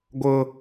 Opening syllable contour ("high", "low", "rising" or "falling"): high